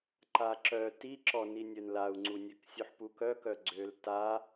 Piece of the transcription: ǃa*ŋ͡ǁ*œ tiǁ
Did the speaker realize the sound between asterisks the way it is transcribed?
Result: no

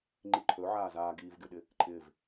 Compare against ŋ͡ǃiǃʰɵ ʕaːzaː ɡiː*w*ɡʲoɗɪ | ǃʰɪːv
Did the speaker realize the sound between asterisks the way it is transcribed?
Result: no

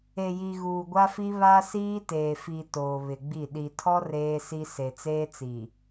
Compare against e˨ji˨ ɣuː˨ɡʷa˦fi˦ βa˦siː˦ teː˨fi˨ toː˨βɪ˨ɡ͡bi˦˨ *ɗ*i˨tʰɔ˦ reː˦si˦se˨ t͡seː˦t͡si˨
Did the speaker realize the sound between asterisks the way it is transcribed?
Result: yes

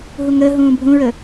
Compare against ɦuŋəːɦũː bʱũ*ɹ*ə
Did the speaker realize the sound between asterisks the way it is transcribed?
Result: yes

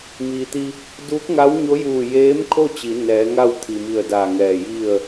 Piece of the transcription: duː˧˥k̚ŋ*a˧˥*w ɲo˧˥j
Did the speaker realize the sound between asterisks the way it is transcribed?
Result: yes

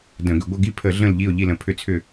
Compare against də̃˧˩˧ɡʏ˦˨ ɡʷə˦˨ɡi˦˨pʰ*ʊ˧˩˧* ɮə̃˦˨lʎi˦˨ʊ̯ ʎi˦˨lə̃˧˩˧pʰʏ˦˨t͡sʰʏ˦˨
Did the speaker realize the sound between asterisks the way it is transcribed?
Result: no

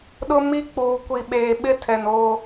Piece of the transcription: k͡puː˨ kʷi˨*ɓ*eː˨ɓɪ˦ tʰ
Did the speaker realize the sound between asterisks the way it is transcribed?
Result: yes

